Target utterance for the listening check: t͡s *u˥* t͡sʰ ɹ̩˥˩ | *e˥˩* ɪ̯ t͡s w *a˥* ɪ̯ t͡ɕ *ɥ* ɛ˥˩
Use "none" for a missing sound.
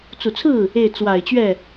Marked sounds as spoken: u˨˩, e˥˩, a˨˩, ɥ

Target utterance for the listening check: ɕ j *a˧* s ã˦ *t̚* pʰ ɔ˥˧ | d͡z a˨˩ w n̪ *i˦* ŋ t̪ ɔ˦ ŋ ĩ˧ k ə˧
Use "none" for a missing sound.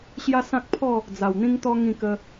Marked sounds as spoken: a˦, k̚, ĩ˦

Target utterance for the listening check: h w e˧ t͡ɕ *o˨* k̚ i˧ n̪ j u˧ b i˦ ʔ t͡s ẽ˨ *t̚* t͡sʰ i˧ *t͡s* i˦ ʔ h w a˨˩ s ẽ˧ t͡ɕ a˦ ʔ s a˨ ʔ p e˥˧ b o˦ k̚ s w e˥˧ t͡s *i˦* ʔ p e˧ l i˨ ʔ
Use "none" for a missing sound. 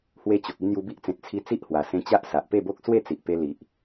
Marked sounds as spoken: o˨, t̚, t͡s, i˨

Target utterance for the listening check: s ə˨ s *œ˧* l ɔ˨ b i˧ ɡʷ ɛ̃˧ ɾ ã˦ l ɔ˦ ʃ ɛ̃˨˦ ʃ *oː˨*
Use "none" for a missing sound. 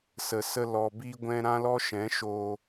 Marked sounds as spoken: ə˧, oː˧

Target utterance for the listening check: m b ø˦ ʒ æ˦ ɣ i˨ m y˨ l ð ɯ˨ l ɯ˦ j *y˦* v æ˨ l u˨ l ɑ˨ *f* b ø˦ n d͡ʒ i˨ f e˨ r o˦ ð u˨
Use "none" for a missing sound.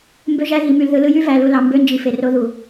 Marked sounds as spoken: y˦, m

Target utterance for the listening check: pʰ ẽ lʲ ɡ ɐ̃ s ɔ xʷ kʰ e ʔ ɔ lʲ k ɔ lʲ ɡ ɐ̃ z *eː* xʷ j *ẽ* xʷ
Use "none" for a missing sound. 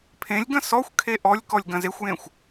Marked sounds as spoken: e, ẽ

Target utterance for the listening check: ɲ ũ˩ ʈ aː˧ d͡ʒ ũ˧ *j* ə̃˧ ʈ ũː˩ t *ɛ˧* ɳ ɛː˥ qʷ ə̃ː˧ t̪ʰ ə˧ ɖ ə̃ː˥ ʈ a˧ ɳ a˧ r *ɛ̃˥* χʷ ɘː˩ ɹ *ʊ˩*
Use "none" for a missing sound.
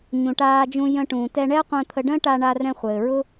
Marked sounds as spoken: j, ɛ˧, ɛ̃˧, ʊ˥

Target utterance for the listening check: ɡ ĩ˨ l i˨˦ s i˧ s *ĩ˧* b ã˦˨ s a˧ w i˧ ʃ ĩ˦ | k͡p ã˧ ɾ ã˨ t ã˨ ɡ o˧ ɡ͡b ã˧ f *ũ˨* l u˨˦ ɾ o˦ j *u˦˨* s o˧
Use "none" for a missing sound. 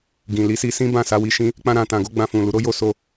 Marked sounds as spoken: ĩ˦, ũ˨, o˦˨

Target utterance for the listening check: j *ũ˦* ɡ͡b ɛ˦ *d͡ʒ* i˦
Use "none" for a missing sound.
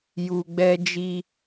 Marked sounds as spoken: u˦, d͡ʒ

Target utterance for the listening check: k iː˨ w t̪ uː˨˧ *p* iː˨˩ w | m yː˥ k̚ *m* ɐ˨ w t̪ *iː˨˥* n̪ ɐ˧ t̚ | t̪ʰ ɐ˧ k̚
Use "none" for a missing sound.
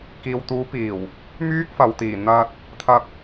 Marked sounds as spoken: p, f, iː˨˩

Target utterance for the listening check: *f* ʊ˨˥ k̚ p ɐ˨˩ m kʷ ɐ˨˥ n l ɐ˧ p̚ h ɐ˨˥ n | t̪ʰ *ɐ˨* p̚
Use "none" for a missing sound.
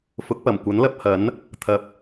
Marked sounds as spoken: f, ɐ˨˥

